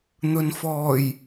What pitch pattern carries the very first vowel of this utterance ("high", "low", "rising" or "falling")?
low